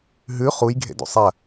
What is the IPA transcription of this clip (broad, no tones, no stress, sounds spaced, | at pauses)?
ɦ ʉ χ u j ɡʱ ḛ d ṵ sˤ ɐ